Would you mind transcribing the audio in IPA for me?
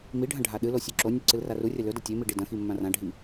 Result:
m i ɖʱ ɐ̃ ɖʱ a ɗ ɨ l o sʲ ʉ ǁ o nʲ u ǀ ɨ l r a r u rʲ ɐ l ɵ d ɐ tʲ e m i ɖ i d ɐ̃ x i mː ã r ã ɖʱ i

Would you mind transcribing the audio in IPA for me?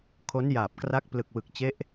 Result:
kʰ o˦˥ n j aː˨˩ p̚ k r a˦˥ k̚ p l ɯ˨˩ k̚ w ɯ˨˩ k̚ t͡ɕ e˦˥ ʔ

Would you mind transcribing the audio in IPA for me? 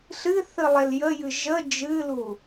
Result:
ɬ ɨ θ ɨ lˠ e l j ə j ɨ ʒ ə d͡ʒ ɨ l u

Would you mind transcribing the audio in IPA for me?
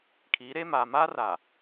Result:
kʰ iː˨˦ ɾ eː˦ m aː˨ m aː˦ r a˨

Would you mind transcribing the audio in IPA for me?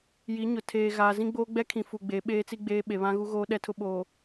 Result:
j i˨˦ ɲ ʊ˨ tʰ eː˨ ɣ aː˨ z ĩ˦ ɡ͡b oː˦ ɡ͡b ɛ˦ kʰ ĩ˨ f u˨ ɡ͡b e˨˦ ɓ eː˦ t͡s i˦ ɡ͡b eː˦ ɓ e˨ β ã˦ ɣ u˦ ɣ oː˦ ɗ ɛ˦ tʰ ʊ˦ ɓ oː˨

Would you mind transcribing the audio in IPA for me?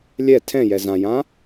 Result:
lʲ ɛ tʰ ɛ̃ j ɛ z ã j ã

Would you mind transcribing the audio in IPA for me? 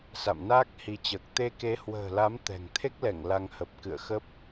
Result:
s a̰˧˨ m n aː˦˥ k̚ h i˨˦ t͡ɕ əː˨˩ k̚ t̪ e˧ k e˨˦ h w ə̤ː˨˩ l a˨˦ m t̪ ɛ̤˨˩ ŋ t̪ʰ e˦˥ k̚ l ɛ˧˩ ŋ l a˧ ŋ h ə˨˩ p̚ k ɨ̰˧˨ ə̯ x ə˦˥ p̚

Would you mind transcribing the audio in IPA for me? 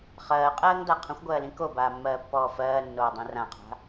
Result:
χ ɜː qʼ ɜː ŋ d a qʰ ə̃ xʷ ɡʷ ɜː l ĩ k o b aː mː ɜː pː ɔː f ɜː nː oː dˤ ĩ r ã qʰ a̤

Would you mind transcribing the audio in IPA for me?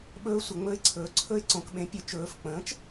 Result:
ɓ ɵː˧˥ sʷ ə˩˧ ŋ͡m ɵ˧˥ ɪ̯ ǀʰ ɵː˩˥ ǀʰ ɵ˧˥ ɪ̯ ǀ õ˩˧ k ɓ ẽ˩˥ pʲ ɵ˩˧ t͡ʃ ɵː˩˧ f k͡p ə̃ː˩˥ t͡ʃ

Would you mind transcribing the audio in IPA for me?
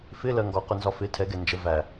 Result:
f ɪ l ɜ ŋ ɡ ɒ q ʊ n z ɒ f ɪ tʰ ɛ ɡ ɛ n d͡ʒ ə v æ

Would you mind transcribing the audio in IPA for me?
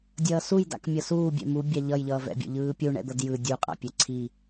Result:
dʲ ʌː s u j d a̰ k mʲ ʌ s uː bʲ ɛ̰ m u bʲ a ʎ ʌ j ʎ ʌː v ɛ̰ bʲ ṵ ʎ ɯː pʲ u ɳ ɛ̰ d̪ ʌ d j ɯ dʲ u qʼ a̰ pʲ ɛ ǀʰ i

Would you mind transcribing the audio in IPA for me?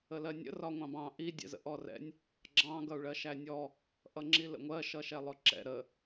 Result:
ə l ɜ nʲ ə̰ r ɒ ŋʷ ɑ̃ b ɑ̃ ʔ i dʲ ɛ̰ z ə̰ ʔ ɔ r ɛ̰ nʲ | ɡ͡ǁ ɑ̃ ɡ ʌ u̯ ɭ ɜ ʃ æ nʲ ɔ | ʔ ʌ ŋ͡ǁ i l ə̰ ŋʷ ɜ ʃ ʌ ʃ ɛ lˠ ʊ ǁ ɛ̰ ɾ ə

